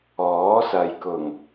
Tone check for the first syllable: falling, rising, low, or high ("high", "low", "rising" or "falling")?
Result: rising